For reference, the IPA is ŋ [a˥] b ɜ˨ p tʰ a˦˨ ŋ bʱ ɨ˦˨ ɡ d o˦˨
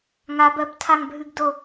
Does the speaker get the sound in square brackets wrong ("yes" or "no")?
yes